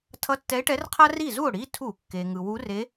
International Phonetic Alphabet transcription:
tʰ ʌ˧˥ tː ɛ˧˥ e̯ ʈ ɛ˧˥ r qʰ a˥ r i˥˩ z u˥˩ o̯ ɽ i˩˧˩ tʰ u˧˩˧ kː e˩ ŋ ɯ˩ w u˧˥ r e˧˥

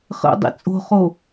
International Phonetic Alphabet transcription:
χ ə̰ dˤ ḭ t͡sʼ o̤ χ o

